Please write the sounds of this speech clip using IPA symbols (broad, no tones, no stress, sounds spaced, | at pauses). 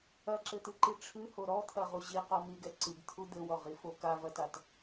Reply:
ɐ ǁ ɘ t̪ ɨ ǃ i ʈ͡ʂʰ ɨ h o ɾ ɔ t̪ʰ ɐ ʁ u ʑ i q ɔ m i ɡ ɛ ǀ ɨ ɡ t̪ʰ u d̪ ɘ w ɔ ʁ i f o k a v ɐ t a t